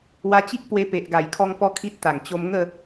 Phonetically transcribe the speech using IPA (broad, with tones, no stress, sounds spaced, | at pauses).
w a˧ t͡ɕ i˦ k̚ p w e˧ p e˨ ʔ ɡ a˨˩ j kʰ ɔ˧ ŋ p ɔ˦ kʰ i˦ t̚ t̪ a˨˩ ŋ t͡ɕ o˧ m ŋ ə˥˧